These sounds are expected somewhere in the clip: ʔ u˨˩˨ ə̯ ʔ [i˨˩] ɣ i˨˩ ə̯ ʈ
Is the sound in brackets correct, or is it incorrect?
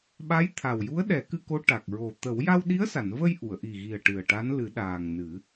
correct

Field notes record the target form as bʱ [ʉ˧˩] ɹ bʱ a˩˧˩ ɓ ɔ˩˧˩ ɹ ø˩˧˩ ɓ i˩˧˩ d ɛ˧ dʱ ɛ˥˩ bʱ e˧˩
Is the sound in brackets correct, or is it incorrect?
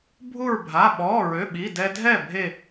incorrect: u˧˩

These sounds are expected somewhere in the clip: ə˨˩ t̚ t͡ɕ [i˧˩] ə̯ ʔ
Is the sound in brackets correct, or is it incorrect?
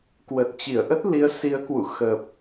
correct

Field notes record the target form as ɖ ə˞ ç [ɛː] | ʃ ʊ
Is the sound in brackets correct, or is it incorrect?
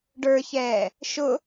correct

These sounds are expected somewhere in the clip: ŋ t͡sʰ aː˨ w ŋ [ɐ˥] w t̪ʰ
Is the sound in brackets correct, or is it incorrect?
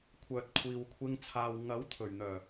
incorrect: ɐ˨˥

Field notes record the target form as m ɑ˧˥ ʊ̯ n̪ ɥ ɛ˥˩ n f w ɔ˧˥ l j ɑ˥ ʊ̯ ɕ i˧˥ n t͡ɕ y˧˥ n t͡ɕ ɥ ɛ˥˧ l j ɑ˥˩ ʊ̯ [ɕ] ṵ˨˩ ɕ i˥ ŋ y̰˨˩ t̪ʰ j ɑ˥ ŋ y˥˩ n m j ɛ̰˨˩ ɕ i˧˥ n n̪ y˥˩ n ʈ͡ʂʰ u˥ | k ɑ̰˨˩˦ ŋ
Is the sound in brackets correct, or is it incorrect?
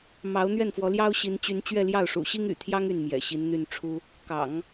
incorrect: ʂ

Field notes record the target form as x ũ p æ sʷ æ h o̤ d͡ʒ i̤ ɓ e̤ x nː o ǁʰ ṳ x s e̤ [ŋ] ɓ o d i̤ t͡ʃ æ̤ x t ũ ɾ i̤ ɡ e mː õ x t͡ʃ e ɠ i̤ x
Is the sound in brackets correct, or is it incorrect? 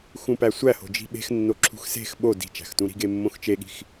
incorrect: x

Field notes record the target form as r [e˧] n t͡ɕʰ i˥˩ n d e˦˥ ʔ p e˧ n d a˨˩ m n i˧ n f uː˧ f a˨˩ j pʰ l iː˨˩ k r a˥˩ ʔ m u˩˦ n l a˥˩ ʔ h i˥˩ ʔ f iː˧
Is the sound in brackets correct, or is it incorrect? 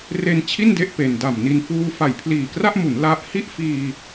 correct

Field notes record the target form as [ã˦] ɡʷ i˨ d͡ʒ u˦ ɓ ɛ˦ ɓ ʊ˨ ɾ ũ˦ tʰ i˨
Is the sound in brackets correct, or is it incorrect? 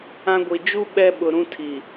correct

